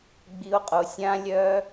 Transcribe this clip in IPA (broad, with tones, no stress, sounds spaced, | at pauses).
ɡ͡b i˧ o̯ qʼ o˧ sʲ ã˦ lʲ œ˦